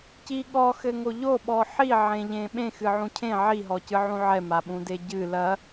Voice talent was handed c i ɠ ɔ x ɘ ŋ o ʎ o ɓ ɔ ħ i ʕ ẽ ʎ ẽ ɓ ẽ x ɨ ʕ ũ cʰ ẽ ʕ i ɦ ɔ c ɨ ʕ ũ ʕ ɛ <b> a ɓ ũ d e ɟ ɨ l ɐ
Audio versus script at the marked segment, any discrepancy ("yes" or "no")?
yes